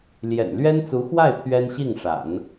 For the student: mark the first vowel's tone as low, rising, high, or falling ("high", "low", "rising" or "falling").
low